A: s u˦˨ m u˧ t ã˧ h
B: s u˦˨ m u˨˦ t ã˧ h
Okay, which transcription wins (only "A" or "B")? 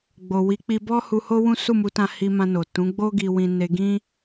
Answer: B